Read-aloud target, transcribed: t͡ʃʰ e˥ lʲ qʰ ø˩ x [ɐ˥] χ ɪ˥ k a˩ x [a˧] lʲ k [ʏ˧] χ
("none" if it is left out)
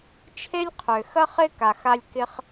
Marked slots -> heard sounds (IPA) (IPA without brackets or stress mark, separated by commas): ɐ˥, a˧, ɪ˧